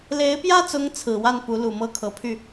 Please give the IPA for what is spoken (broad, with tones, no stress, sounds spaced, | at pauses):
l e˧˥ ɪ̯ p j ä˥ t͡s ʊ˧˥ ŋ t͡sʰ ɹ̩˨˩ w a˥˩ n p u˧˥ l u˨˩ m ɤ˥ kʰ ɤ˨˩ pʰ y˥˩